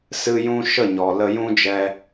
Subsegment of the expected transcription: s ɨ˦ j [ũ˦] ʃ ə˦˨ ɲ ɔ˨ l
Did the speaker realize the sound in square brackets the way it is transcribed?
yes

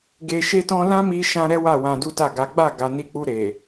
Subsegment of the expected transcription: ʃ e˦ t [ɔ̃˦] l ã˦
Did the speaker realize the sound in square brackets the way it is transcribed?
yes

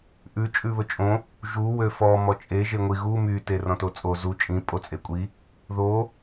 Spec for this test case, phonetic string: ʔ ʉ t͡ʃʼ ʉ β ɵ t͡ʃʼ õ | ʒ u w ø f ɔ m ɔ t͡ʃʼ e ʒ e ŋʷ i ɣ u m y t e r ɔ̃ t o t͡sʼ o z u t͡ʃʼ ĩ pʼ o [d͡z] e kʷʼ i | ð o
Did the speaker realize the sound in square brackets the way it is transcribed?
no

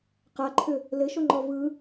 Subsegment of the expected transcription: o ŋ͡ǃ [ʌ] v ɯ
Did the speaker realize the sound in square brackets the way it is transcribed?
no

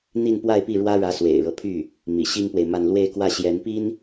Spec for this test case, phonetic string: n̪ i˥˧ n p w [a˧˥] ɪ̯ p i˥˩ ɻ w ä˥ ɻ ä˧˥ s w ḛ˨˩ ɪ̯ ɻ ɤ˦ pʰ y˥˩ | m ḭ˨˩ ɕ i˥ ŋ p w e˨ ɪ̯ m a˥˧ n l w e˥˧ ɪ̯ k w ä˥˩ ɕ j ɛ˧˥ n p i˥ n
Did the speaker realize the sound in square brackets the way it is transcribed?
no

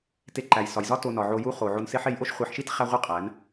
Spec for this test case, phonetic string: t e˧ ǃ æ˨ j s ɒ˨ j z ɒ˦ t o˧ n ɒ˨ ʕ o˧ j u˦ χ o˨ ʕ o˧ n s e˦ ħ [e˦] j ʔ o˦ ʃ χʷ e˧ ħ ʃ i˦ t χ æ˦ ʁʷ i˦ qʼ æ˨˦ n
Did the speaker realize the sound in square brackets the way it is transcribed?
no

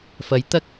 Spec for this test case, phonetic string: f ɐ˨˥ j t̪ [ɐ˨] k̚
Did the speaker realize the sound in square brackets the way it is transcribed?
no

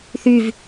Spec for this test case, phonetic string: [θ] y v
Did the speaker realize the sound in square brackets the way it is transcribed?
yes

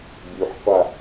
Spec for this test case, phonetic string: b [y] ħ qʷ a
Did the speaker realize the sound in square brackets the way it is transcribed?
yes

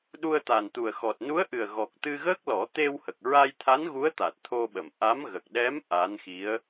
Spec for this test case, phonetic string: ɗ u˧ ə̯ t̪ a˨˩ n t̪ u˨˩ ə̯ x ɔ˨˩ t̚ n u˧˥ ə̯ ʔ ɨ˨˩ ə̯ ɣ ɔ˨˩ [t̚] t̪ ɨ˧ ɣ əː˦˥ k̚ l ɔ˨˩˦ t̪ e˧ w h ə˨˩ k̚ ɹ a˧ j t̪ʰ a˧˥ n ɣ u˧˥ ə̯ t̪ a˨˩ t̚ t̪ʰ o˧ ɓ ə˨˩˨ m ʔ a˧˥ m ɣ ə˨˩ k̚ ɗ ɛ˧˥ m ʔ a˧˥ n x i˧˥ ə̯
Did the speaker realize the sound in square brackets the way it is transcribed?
no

